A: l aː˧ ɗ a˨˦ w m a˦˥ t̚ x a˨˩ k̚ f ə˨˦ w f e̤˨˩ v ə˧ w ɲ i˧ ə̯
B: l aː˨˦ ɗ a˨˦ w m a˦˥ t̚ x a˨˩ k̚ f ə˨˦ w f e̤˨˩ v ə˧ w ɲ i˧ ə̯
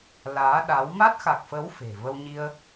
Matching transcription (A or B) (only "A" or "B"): B